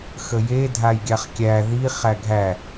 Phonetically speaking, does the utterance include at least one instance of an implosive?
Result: no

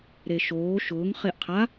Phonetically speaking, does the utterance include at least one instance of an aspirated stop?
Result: yes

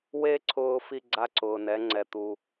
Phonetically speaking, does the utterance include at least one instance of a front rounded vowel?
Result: no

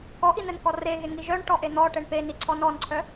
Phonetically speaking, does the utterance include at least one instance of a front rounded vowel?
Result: yes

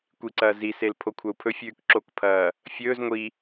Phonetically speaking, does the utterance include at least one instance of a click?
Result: yes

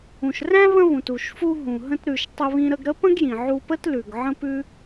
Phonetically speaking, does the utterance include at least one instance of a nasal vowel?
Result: yes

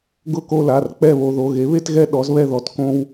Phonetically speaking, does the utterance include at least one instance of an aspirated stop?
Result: no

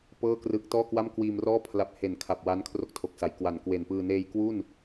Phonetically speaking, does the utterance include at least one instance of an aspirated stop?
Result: yes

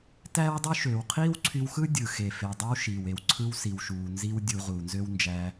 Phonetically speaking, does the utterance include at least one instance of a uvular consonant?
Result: yes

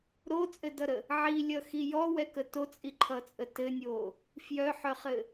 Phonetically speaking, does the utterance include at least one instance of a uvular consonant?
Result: yes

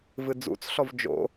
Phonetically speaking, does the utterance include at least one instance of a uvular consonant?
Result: no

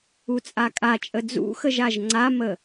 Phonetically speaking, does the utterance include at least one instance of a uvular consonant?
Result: no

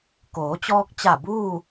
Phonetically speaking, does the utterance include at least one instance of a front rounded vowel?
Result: no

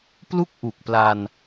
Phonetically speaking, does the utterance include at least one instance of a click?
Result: no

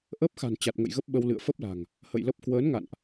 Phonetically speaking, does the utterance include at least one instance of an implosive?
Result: yes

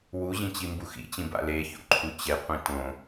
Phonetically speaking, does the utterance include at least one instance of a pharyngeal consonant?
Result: no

